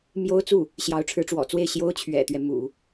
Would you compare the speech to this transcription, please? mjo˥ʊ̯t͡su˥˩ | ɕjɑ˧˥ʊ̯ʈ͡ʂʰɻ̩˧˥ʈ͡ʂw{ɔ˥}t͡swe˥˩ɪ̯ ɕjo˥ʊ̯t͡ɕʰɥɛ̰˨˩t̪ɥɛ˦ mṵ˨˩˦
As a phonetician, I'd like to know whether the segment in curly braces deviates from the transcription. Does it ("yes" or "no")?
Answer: yes